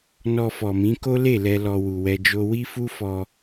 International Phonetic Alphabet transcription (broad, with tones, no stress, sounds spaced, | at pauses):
n ɔ˧ f ɔ˨ m ĩ˨˦ k o˦ l e˦˨ l ɛ˧ l ɔ˧ w u˨ w ɛ˧ d͡ʒ o˦ w i˦ f u˦ f ɔ˧